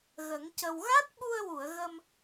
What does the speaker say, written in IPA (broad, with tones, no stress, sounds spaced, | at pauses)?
ɣ ə˨˩˦ ŋ c ə˧ w ɣ a˦˥ t̚ ɓ u˧ ə̯ w u˨˩˨ ə̯ ɣ ə˧ m